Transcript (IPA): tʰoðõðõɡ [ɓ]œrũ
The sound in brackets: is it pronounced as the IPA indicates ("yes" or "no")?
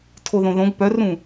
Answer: no